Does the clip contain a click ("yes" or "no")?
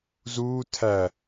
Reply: no